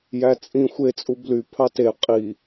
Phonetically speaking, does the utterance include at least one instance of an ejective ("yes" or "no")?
yes